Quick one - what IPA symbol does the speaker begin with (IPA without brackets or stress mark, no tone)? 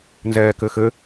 n